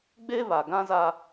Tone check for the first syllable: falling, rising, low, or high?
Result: high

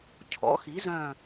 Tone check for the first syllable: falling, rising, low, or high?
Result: rising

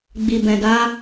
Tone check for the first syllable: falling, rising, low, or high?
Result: low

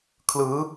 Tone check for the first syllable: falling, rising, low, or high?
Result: rising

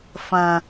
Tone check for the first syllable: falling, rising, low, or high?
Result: high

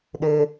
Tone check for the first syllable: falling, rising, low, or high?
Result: high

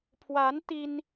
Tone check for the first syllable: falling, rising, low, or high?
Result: rising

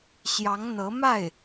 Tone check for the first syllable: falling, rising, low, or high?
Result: rising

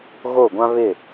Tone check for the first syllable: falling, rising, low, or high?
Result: falling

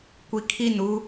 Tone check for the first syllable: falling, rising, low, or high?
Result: low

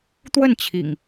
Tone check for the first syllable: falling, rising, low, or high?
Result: falling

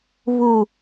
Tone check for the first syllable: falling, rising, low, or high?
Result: low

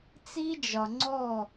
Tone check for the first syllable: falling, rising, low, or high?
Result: high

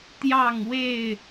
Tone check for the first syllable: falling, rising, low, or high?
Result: falling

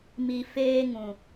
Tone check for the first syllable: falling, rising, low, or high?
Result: low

